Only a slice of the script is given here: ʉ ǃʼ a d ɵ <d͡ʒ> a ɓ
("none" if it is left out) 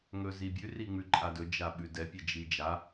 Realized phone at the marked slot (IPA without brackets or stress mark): d͡ʒ